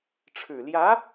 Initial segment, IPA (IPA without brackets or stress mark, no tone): ʈ͡ʂʰ